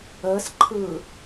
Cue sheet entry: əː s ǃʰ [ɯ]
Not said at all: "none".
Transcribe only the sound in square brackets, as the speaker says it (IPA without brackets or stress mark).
ɯː